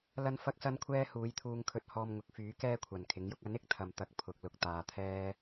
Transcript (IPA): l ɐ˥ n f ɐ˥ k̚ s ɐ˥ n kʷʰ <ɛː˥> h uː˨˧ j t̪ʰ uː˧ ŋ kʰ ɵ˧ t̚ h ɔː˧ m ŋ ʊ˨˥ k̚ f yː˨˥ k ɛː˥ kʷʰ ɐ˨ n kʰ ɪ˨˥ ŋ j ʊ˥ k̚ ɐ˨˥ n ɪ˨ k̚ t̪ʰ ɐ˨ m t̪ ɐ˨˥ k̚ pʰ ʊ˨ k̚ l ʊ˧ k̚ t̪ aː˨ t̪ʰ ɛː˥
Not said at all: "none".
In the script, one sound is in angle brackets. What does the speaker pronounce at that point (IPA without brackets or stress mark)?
ɛː˥